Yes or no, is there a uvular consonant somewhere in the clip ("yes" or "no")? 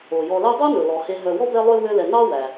no